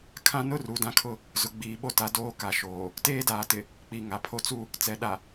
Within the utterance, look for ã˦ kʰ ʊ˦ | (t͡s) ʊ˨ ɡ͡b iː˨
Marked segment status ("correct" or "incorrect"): incorrect